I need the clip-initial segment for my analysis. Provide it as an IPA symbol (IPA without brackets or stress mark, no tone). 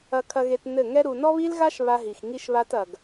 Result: ɐ